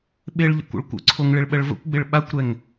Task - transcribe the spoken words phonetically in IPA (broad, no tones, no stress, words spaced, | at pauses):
ɓɪɭ ʎə̰kʷə̰ɭkʷə̰ǀʰoŋ ɭɪɭɓəɭvə̰kʷɡ͡bɪɭ ɓakʷɾɛŋ